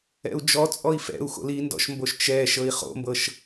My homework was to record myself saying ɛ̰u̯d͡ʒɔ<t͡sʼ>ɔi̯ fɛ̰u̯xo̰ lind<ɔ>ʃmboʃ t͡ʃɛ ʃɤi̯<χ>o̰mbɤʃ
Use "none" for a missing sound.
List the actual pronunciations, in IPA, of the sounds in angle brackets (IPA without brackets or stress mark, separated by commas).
t͡sʼ, ɔ̰, χ